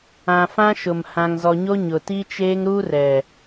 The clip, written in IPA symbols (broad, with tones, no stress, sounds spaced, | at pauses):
ã˨ f ã˦ ʃ ʊ˨ m h ã˨ ŋ z ɔ˨ ɲ o˦ ɲ ʊ˨ t i˦ t͡ʃ eː˦ ŋ ɾ u˦ r ɛ˨